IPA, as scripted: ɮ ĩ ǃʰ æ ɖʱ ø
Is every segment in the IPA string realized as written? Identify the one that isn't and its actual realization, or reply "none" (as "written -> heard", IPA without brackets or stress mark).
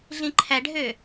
none